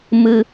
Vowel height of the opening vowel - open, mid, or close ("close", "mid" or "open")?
close